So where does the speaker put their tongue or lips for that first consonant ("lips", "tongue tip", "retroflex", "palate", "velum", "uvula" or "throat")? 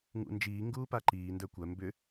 velum